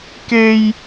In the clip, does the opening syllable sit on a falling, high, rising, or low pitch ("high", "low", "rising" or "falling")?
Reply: high